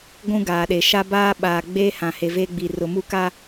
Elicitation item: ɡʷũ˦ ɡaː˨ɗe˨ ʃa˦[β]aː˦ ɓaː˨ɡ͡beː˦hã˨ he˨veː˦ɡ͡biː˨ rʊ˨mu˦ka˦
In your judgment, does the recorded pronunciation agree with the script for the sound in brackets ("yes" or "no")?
no